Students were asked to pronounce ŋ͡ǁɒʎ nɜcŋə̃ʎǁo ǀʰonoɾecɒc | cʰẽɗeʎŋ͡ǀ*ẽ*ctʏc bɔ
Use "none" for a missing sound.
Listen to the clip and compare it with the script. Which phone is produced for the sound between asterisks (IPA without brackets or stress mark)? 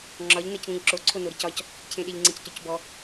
ẽ